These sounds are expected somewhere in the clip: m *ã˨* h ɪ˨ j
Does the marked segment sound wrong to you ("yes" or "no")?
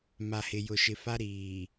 yes